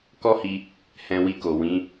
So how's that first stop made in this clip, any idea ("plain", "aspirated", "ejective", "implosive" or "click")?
plain